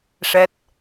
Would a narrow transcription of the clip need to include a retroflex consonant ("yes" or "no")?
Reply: yes